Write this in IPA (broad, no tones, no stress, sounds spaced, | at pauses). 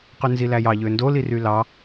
q y n z i l æ j ɑ ʎ ø n d o l i r y l ɑ